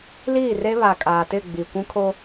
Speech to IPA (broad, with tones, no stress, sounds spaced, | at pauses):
l iː˦˨ r e˦ β a˨ kʼ aː˨ t ɪ˦˨ ɡ͡b i˨ kʷ ũ˦ kʰ o˦